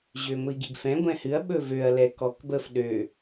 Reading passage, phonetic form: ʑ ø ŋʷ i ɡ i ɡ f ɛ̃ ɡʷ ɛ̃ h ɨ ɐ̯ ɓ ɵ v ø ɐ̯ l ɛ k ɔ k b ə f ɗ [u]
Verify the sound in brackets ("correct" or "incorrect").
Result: incorrect